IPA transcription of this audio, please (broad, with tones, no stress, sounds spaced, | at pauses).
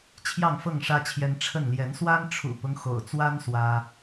t͡ɕʰ j ɑ˥˨ ŋ f ɤ˥˨ ŋ ʂ ä˦ t͡ɕʰ j ɛ˦ n ʈ͡ʂʰ ə˥˨ n l j ɛ˨˦ n s w a˦ n ʈ͡ʂʰ ṵ˨˩ p ʊ˦ ŋ x o̰˨˩ ʊ̯ t͡s w a˦ n s w ä˦